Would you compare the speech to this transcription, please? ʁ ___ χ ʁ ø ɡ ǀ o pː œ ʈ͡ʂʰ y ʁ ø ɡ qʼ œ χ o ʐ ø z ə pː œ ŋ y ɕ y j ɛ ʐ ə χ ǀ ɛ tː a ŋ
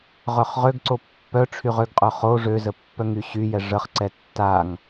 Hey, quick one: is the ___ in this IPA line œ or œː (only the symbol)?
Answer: œ